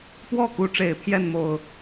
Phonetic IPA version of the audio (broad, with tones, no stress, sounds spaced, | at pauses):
p w ɔ˥˨ k u˨˦ ʈ͡ʂ e˨˩ ɪ̯ pʰ j ɛ˥˨ n m o˨˩ ʊ̯